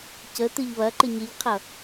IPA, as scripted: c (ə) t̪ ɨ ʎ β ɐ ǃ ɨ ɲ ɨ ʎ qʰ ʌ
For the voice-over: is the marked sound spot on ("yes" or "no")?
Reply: yes